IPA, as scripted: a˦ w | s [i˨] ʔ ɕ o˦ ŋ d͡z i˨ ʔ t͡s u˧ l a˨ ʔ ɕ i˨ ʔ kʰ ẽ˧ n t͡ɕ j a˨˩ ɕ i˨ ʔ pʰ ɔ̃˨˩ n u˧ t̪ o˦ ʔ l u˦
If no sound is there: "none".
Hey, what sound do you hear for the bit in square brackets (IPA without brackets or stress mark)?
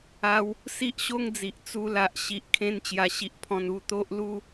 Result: i˦